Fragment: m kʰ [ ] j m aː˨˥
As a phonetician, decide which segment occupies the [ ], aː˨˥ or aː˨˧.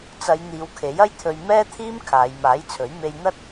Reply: aː˨˧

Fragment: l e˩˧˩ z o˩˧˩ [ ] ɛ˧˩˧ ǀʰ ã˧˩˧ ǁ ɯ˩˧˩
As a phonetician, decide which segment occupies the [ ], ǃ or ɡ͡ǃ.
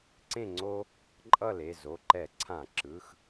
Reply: ǃ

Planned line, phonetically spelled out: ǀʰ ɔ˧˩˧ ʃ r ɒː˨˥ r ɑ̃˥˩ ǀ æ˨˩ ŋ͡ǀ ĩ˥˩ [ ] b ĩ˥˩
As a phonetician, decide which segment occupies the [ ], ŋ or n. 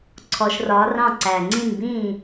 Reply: n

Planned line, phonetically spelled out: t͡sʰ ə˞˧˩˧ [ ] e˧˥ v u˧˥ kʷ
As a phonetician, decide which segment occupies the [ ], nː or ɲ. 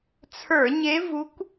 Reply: ɲ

